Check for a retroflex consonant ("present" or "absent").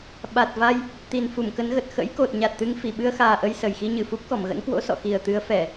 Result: absent